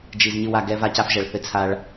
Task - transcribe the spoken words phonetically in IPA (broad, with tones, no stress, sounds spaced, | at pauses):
d͡ʒ i˨ z ɲ ɨ˨ w a˨ ɡ ɛ˦ v a˦ c a˦ f ʒ ɛ˨ ɭ θ ɘ˦ t͡sʰ a˦ ɭ